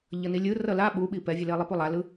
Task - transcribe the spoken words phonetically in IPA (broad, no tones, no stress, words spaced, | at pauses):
ʎʌnilʲɯ rʌla ɓuɓi pɛvʲɯle lˠipulˠalɯ